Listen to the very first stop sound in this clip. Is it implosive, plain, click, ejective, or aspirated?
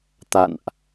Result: plain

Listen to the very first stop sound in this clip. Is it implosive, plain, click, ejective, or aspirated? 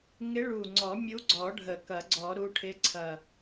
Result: click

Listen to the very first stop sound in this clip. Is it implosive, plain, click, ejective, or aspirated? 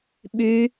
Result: implosive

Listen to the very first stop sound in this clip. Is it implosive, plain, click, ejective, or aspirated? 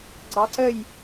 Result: click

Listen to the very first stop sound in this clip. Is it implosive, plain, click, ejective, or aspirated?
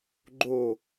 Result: click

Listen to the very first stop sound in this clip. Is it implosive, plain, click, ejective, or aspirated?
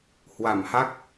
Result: plain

